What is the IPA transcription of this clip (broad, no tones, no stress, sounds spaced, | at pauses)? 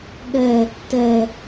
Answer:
ɠ ɛ | t ɛ